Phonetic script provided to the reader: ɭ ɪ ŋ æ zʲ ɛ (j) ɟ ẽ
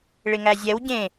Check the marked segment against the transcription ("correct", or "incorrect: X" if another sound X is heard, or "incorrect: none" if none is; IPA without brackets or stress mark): incorrect: w